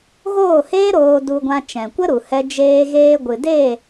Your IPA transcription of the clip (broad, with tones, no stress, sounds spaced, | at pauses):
ɣ oː˦˨ h eː˦ ɾ oː˧ d u˧ ɡʷ ã˧ t͡ʃ ɛ̃˨ kʷ ə˦ ɾ u˨ h ɛ˧ d͡ʒ eː˧ ɣ eː˧ ɡʷ ɨ˨ d e˦˨